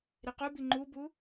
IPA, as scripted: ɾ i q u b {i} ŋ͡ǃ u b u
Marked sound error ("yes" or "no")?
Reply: no